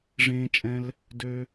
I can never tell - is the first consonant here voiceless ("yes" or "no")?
no